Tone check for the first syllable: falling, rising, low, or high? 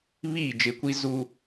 falling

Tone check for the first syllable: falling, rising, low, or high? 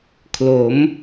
rising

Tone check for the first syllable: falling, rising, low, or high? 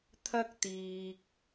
high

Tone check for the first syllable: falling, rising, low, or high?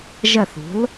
falling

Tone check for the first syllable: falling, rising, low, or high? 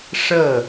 falling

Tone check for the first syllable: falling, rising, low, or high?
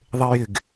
high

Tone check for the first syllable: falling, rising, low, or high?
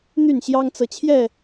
falling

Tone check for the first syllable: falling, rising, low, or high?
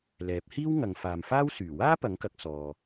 rising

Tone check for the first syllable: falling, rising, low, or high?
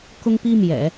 high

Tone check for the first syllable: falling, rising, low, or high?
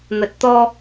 low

